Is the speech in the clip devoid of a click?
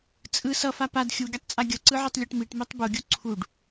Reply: no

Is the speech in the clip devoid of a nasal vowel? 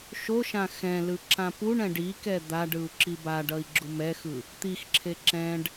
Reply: no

